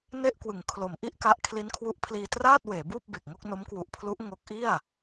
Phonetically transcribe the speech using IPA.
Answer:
n e˥˩ ʔ k w ɯ˩˦ ŋ kʰ l o˩˦ m ʔ i˥˩ ʔ k a˦˥ ʔ kʰ l i˦˥ n kʰ w u˦˥ ʔ pʰ l iː˧ t r aː˥˩ t̚ w eː˩˦ b uː˥˩ p̚ b e˨˩ k̚ ŋ o˥˩ k̚ n o˦˥ m k w u˨˩ ʔ pʰ l u˦˥ ʔ ŋ o˦˥ k̚ ʔ i˥˩ a̯

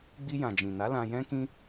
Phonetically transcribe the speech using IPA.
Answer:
ɡ͡b i˧ j ã˨ d͡ʒ ĩ˨ n a˨˦ l ã˧ j ɛ̃˦ k ĩ˦

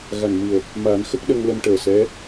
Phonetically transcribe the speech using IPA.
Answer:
ɣ a˨˩ n m ɨ˨˩ ə̯ | m a˨˩˦ n x ə˦˥ k̚ ɗ ə˧ ŋ l ə˧ m ʈ əː˨˩ s ɛ˧˥

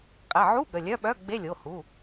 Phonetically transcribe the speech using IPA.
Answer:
qʼ ɛ˩˧˩ ʕ u˧˥˧ ɠ ə˩˧˩ lʲ œ˧˥˧ ɓ œ˧˥˧ ɡ͡b e˧˥˧ lʲ o˩˧˩ h u˩˧˩

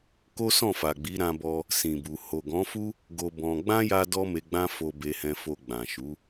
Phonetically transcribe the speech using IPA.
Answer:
k o˦ s ɔ̃˦˨ f a˨ ɡ͡b i˨˦ ɾ ã˧ b ɔ˧ | s ĩ˨ b u˨ h o˨ ɡ ɔ̃˨˦ f u˦ | ɡ o˧ b ɔ̃˧ ɡ͡b ã˦ j a˦ d ɔ˦ m e˧ ɡ͡b ã˦ f o˧ b e˧ h ɛ̃˧ f o˧ ɡ͡b ã˨ ʃ u˨˦

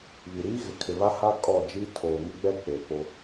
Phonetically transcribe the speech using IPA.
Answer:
β i˨ ɾ iː˦ ɣ ɪ˨ kʰ ɪ˨ β a˦ h a˦ kʼ ɔ˦˨ d͡ʒ i˦ tʰ oː˨ ŋ ɪ˦ ɡ͡b ɛ˦ k͡p e˨ p o˦

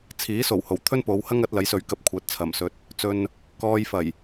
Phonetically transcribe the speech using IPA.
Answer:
t͡sʰ iː˨˥ s o˨˩ w h o˨˩ w t̪ʰ ɵ˥ n p o˨˧ w h ɐ˥ ŋ ɐ˨˥ t̚ l ɐ˨˥ j s ɵ˨˥ ɥ k ɐ˧ p̚ kʷʰ ɐ˨˥ t̚ t͡sʰ ɐ˨˩ m s ɵ˧ t̚ | t͡s ɵ˨ n | k ɔː˧ j f ɐ˨˩ j

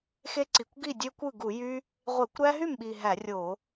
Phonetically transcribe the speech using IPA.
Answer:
x e˦ ǀ i˨˩ kʷ ɡ i˥˩ dʲ ø˦ kʷ ɯ˥˩ ɡ u˧˩˧ j y˦ | ʁʷ e˧˩˧ kʷ ɾ æ˦ ɦ y˥˩ m ɓ i˨˩ ɦ æ˧˩˧ rʲ o˧˩˧

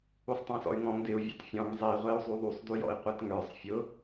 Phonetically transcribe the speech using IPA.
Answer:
u sˤ tˤ ɛ̃ s ɔ̰ y̯ ŋ ɔ̃ ŋ d ɪ u̯ vʲ ɑ̰ t fʲ ɔ̃ ŋ zˤ i ʁʷ ɛ u̯ zˤ u ðˤ u sˤ d u j ɔ̰ i̯ qʷ ɛ t ŋ ə˞ sˤ fʲ ʊ

